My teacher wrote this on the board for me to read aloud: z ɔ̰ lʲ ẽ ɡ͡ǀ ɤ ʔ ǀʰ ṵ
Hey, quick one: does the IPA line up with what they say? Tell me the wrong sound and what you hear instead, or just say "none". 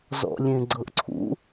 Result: none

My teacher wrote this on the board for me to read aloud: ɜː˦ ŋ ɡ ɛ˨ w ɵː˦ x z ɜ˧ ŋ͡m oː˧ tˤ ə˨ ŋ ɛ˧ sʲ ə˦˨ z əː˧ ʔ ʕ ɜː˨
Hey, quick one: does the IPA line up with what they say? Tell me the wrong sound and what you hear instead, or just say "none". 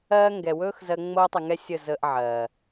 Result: none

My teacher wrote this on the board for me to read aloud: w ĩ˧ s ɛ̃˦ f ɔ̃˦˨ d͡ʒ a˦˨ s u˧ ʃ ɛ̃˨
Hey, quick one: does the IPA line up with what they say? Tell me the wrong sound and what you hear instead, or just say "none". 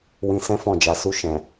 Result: a˦˨ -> a˨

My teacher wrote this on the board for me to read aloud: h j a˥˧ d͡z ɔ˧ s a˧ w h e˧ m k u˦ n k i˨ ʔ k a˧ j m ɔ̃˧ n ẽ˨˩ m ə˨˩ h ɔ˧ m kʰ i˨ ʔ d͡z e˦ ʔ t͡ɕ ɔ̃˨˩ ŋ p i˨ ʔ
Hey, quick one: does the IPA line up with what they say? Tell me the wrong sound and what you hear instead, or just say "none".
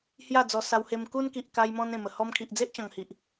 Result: p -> h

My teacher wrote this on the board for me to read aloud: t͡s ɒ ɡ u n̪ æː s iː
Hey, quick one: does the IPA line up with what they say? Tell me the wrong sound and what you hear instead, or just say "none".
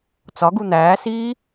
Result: none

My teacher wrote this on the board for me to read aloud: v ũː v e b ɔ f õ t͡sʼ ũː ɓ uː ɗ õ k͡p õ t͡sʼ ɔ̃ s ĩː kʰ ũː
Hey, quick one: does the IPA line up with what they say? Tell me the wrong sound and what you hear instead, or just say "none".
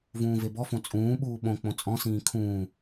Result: ɗ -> ɓ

